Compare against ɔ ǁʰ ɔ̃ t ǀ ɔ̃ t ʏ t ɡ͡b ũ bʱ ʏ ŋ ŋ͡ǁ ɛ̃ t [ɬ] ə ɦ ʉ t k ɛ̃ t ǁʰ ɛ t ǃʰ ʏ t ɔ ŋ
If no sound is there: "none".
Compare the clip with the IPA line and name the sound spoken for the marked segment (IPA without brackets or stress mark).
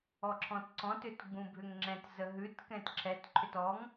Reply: z